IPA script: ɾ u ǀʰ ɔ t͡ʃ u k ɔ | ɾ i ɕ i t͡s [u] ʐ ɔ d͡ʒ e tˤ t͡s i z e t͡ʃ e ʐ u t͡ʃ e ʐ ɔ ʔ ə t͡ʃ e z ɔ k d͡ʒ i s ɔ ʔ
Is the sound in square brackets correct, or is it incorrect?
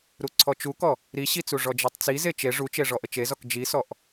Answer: correct